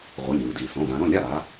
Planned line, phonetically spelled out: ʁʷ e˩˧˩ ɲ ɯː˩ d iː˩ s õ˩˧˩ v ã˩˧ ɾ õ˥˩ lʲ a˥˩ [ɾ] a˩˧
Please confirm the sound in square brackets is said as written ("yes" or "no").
yes